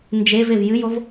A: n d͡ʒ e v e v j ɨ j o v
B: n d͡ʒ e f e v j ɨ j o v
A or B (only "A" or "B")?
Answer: A